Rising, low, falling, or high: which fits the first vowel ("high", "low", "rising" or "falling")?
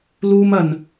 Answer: high